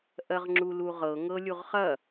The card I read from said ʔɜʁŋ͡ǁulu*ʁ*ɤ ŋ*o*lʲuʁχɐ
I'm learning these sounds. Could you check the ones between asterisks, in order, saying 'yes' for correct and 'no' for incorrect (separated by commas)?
yes, no